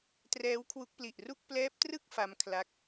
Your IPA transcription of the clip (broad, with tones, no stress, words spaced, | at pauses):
trɛː˦˥wkʰwu˦˥k̚pli˨˩ʔ ru˥˩k̚ plɛː˦˥p̚trɯ˥˩k̚ fa˦˥mkʰla˦˥k̚